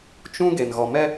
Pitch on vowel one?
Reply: high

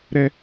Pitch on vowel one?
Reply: high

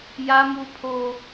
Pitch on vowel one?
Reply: high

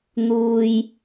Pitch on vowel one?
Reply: low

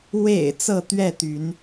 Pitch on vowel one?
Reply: low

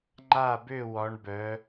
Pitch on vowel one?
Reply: falling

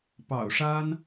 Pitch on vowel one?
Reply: low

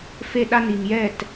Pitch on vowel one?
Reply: falling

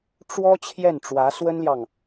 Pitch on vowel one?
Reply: high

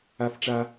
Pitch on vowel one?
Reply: high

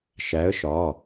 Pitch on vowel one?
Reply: rising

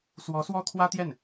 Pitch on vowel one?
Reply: rising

